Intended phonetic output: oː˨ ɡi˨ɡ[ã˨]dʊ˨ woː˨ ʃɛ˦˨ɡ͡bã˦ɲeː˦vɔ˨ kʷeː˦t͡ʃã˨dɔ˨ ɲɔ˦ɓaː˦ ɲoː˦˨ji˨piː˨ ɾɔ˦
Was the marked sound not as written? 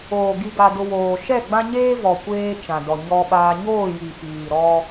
yes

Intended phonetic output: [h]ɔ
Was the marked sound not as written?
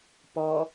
yes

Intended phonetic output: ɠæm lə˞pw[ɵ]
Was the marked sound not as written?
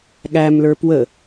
yes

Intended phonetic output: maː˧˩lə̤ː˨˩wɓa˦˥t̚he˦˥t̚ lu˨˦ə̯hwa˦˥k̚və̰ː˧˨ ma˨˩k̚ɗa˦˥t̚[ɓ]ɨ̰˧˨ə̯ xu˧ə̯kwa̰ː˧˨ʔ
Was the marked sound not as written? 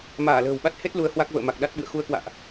no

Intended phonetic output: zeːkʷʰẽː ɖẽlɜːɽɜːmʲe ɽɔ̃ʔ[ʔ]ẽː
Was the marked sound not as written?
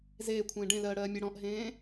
yes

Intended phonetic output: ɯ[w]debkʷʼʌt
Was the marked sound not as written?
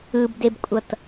yes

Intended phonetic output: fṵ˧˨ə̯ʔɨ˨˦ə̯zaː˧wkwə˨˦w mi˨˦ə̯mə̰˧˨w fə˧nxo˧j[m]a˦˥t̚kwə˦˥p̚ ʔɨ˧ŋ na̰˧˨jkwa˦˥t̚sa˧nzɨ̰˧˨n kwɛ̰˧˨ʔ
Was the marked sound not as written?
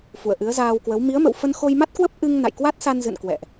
no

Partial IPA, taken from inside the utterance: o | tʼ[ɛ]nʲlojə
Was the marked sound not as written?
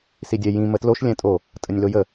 yes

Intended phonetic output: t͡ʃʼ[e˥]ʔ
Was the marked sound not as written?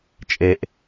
no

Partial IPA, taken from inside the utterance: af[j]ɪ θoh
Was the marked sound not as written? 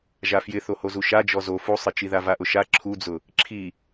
no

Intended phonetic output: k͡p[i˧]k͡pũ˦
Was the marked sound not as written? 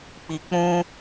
no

